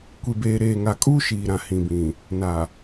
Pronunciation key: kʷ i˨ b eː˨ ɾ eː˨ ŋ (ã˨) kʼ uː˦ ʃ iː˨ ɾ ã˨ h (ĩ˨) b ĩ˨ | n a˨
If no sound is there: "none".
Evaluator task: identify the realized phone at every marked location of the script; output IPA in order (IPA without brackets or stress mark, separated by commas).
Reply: a˨, ĩ˨